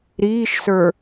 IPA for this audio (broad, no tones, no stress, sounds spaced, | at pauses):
ɾ iː ʃ s ə˞